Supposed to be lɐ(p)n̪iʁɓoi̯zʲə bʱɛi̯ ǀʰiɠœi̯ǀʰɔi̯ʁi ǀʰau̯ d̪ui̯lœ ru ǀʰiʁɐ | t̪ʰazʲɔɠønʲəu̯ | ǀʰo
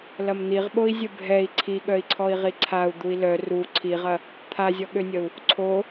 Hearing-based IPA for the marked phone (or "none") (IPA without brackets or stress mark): m